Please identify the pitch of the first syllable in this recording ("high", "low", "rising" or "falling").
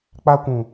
high